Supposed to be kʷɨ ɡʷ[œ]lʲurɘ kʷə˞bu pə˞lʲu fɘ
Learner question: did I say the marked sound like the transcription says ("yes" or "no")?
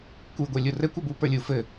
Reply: no